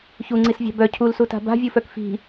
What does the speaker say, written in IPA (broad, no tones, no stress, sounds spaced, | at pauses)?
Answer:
ç u ŋ͡ǀ i s vʲ a̤ b œ cʰ u l s u t a̤ b a̤ vʲ u f œ k f i̤